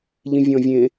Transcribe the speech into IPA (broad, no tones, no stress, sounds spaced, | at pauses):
ʎ ĩ vʲ ɔ̃ vʲ ẽ